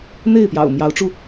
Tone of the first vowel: falling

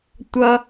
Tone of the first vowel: high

